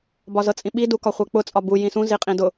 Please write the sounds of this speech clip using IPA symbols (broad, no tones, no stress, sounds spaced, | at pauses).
b ɒ z ɤ t͡sʼ ĩ ɓ i d u k ɒ χʷ ɛ k͡p ʊ t͡sʼ ɒ b u j ĩ s ũ z i qʼ ĩ d ʊ